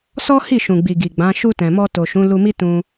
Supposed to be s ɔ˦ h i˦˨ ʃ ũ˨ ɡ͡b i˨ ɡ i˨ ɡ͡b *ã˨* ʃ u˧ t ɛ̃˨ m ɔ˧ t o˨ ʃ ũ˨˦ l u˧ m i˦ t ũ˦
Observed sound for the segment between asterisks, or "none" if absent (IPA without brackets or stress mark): ã˨˦